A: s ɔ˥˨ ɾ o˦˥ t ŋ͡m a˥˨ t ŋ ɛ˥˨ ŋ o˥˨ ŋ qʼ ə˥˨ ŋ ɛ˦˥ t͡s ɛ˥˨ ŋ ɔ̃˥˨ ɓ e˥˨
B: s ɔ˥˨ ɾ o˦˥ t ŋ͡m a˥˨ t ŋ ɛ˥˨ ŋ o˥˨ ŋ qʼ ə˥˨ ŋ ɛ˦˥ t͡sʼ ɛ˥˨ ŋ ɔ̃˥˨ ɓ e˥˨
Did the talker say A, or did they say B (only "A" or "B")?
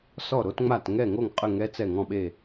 A